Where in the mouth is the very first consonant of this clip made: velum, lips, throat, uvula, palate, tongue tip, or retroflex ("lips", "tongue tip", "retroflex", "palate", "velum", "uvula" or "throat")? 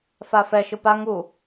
lips